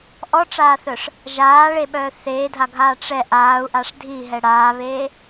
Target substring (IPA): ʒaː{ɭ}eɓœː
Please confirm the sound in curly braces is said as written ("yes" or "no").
yes